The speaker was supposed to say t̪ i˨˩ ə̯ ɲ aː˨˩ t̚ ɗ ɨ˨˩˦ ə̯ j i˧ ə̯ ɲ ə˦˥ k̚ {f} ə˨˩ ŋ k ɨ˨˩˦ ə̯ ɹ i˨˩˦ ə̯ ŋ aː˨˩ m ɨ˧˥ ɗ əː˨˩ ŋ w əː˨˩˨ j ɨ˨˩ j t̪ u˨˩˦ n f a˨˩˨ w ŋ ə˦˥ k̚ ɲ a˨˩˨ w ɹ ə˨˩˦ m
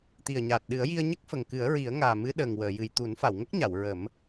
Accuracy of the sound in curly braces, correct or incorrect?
correct